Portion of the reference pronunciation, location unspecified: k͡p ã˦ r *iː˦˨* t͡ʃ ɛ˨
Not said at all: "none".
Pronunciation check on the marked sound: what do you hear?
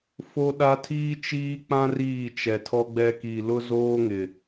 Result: iː˦˨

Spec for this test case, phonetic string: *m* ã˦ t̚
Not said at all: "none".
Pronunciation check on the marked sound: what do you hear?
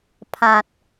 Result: pʰ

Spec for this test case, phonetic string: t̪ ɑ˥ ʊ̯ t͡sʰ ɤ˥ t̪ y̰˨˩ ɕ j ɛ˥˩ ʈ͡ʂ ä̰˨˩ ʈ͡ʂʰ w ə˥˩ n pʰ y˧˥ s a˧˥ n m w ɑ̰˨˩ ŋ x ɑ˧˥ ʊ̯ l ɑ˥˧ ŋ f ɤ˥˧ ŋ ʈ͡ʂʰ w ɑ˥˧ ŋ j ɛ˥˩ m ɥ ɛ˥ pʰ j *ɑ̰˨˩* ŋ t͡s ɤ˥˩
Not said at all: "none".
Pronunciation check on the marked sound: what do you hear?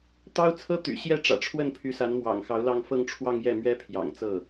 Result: ɑ̰˨˩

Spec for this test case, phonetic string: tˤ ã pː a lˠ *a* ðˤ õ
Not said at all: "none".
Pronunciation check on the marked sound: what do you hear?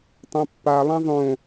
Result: ã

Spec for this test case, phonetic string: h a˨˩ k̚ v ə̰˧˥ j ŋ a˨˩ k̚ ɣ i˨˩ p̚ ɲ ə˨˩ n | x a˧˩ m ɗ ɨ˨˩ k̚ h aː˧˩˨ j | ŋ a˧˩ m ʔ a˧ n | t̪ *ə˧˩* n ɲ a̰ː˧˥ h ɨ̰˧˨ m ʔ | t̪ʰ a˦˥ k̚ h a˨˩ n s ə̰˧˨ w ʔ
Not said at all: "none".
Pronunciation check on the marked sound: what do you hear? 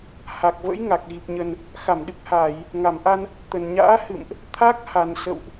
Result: ə˨˩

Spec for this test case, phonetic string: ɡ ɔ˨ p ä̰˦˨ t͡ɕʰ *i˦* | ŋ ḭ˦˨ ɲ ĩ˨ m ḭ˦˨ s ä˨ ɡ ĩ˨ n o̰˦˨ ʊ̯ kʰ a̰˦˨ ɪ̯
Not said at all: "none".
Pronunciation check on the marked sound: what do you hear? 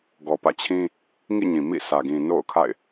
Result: ĩ˦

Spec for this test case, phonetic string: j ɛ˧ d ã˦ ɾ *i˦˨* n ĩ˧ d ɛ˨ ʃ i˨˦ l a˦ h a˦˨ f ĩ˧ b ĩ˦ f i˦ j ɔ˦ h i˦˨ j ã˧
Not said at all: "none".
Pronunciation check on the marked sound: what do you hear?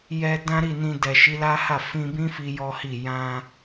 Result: i˦˨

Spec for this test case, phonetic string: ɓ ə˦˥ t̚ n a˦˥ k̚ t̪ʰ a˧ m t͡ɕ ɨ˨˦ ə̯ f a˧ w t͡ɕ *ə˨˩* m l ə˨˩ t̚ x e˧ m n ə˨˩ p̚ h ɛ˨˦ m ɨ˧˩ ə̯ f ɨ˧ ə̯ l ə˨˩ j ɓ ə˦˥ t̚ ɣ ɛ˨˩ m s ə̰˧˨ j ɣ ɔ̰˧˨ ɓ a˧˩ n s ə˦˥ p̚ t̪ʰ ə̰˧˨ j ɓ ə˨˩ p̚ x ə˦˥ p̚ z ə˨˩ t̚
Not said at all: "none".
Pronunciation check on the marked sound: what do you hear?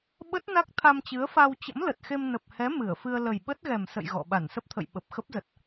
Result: ə̰˧˥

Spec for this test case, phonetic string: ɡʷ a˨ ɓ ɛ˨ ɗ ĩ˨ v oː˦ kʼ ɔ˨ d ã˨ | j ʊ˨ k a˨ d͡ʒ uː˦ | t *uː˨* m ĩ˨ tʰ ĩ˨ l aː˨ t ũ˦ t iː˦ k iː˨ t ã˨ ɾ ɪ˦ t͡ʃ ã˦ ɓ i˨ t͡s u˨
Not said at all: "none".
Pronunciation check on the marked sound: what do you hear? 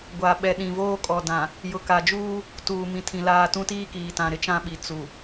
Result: uː˨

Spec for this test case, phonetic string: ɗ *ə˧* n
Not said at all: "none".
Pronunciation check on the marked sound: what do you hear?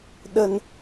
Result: ə˧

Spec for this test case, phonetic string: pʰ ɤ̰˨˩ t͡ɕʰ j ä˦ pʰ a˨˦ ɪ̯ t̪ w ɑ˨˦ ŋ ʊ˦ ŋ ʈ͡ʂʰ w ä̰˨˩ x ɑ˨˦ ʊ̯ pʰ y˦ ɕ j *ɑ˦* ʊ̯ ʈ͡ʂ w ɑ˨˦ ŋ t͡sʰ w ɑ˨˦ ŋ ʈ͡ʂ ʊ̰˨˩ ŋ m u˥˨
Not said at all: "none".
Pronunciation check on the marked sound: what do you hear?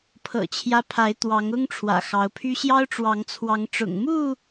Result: ɑ˦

